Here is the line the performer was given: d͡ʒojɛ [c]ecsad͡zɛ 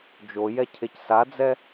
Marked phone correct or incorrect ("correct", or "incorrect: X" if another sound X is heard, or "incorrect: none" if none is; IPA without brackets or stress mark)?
incorrect: cʰ